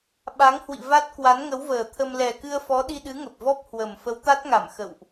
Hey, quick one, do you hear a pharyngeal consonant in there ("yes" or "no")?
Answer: no